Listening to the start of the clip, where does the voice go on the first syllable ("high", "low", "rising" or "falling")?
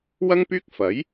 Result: high